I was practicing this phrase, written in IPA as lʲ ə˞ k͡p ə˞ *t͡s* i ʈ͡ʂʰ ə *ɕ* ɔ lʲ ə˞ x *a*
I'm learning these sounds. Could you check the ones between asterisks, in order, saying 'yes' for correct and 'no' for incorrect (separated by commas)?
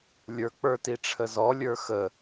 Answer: no, no, no